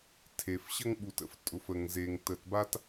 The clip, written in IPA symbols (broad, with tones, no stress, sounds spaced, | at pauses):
tʰ e˩ f ɕ ə˥ ŋ ɓ u˩ t ə̰˩ f tʼ ʊ˩ f ə˩ ŋ z e˩ ŋ t ə˩ t b a˥ t